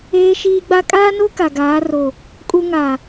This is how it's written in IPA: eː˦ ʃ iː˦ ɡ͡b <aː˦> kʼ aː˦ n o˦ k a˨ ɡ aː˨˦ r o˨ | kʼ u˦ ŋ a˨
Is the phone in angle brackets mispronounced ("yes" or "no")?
yes